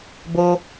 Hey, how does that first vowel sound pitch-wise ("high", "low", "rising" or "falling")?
high